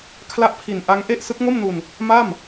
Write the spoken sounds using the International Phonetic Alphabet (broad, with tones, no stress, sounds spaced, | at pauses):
kʰ l a˦˥ ʔ pʰ i˨˩ n ʔ a˦˥ ŋ ʔ e˥˩ ʔ s ɯ˦˥ k̚ ŋ o˥˩ m n u˧ n | m a˥˩ m